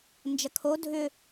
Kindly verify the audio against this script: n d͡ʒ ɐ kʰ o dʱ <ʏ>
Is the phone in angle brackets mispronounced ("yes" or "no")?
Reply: no